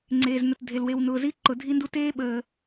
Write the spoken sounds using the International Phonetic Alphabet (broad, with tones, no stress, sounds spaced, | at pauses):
ŋ͡ǀ eː˨ z n ə˨ t dʱ e˨ l w e˨ w n ʊː˨ z i˦ ǃ ʊ˨ dʱ i˦ n d u˦ t eː˦ ɓ əː˨